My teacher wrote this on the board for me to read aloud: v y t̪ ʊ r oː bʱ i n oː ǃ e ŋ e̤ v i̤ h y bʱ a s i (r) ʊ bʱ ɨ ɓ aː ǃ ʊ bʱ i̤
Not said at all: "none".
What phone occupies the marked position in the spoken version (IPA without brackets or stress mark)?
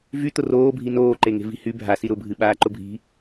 ɾ